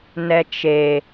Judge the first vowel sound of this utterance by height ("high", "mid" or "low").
mid